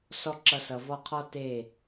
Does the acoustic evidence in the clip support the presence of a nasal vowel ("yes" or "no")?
no